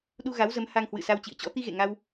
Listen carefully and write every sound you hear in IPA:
ɗ u˧ ɣ a˨˦ w z ə˨˦ m h a˧ ŋ h w ɨ̰˧˨ s a˧ w t͡ɕ ḭ˧˨ ə̯ t͡ɕ ɔ̰˧˥ t̪ i˧ ɣ ḛ˧˨ ŋ a˧ w

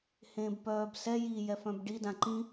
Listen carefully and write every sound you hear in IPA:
h ẽː b p œː b s ɛ j i j ɛ f œ̃ b ɖ i d ã ǃ ĩ

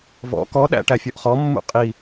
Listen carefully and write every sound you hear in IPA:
v ɔ̰ k ɔ ɗ æ̰ ʈ æ fʲ ɔ ʔ χ ɔ mː ṵ qʼ i

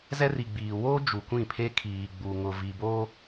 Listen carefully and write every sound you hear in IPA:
z ɛ˦ r i˨ ɡ͡b iː˨ w o˦ d͡ʒ u˨ kʷ ĩ˦˨ pʰ e˦ kʰ iː˨ ɡ͡b u˨ ŋ ʊ˨ v i˨ b o˦

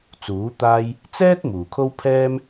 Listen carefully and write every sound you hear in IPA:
t͡s uː˨˥ t̪ aː˥ j | t͡s ɛː˥ t̚ m uː˨˩ kʰ o˥ w pʰ ɛː˥ m

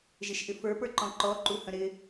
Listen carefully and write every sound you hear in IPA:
ʒ ɪ ʃ ʔ ɪ f ə˞ p ə˞ ǃ ɔ̃ ǃ ɔ ǃ u h ə̃ ɾ ɪ

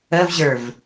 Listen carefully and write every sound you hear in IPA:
ə v ʑ ə˞ v

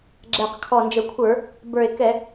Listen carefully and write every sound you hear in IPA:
ɡ͡ǁ ɛ˨˩ q kʰ ɔ˨˩ n d͡ʒ ə˨˩ kʷʰ ə˞˧˩˧ | b ə˞˨˩ e̯ k ɛ˧˩˧

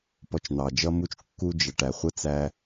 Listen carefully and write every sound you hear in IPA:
p ɔ˧ t͡ʃ n̪ ɑ˩ d͡ʒ ʌ˥ m u˥ t͡ʃ kː u˥ d͡ʒ ʌ˩ ʈ æ˩ χʷ ə˥ t͡s æ˧

